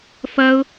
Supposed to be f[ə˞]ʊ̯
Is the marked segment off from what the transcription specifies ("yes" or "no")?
yes